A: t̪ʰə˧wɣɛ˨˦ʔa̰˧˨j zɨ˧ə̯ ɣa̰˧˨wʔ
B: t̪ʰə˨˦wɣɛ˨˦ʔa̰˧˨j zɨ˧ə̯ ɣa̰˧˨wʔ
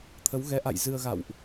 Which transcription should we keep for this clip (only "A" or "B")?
B